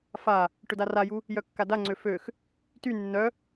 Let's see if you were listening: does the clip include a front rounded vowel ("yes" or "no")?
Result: yes